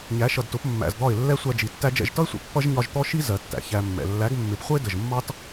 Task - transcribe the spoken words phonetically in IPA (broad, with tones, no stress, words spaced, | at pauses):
ɲæ˨˦ʃʌ˨dtʊ˨˦p mːæ̰˨zd̪ɒ˦˨ɪ̯ lːɛ˦sʷæ˧d͡ʒi˨ tːæ˧d͡ʒɛ̰˦˨ʒtʌ˦ɪ̯sʷɛ̰˨ pːʌ˦ʒɲɒ˧ʒt̪ɔ˦ʃi˦ zɜ˨tːæ̰˨ çæ˧mːɛ̰˨ lːæ˨˦ɡmːɪ˨p χʷə˦ɪ̯də˨ʒmːɑ˦t